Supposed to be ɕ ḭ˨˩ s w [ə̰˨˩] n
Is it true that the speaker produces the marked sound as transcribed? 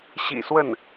no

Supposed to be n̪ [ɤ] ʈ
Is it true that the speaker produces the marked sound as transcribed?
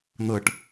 yes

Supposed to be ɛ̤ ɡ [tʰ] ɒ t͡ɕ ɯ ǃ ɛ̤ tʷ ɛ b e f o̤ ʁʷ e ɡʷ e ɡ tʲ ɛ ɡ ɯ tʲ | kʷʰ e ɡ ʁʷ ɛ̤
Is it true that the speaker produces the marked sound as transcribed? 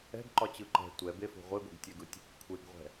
no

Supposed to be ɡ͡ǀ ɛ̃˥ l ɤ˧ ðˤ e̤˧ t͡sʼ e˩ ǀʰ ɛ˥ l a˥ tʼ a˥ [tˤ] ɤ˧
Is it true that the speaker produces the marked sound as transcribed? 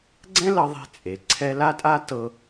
no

